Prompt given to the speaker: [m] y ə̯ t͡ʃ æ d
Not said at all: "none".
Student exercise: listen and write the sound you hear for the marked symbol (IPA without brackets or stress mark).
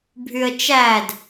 bʱ